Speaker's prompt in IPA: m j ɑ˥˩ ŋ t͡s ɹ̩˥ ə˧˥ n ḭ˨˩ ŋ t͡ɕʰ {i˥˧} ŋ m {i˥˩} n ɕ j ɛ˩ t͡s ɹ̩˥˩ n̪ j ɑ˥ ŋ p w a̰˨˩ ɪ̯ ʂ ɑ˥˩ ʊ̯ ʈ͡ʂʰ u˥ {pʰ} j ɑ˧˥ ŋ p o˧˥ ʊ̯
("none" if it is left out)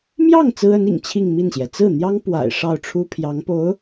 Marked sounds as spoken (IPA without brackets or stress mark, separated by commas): i˥˧, i˥˩, pʰ